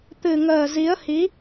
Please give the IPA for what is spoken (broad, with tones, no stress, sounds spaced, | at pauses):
t̪ ɨ˨˩ ŋ əː˨˩ z i˨˦ ə̯ h i˨˦